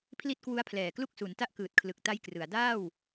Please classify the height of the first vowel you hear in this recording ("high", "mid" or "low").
high